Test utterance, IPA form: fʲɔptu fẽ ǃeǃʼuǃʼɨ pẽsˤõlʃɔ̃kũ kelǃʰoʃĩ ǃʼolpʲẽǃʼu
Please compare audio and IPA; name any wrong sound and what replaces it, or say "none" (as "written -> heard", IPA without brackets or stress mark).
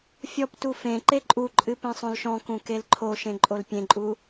ĩ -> ẽ